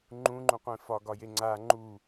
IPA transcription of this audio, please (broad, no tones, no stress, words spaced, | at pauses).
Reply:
ŋ͡ǃũŋ͡ǃũ qʷẽfɒɡɒje ŋ͡ǀa ŋ͡ǃu